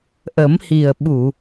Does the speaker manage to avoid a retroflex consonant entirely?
yes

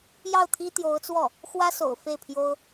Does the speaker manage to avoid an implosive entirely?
yes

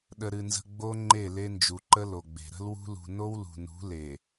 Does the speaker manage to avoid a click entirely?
no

